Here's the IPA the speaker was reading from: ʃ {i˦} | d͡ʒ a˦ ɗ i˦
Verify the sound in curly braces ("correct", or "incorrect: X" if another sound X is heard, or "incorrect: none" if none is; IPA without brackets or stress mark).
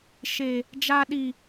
incorrect: e˦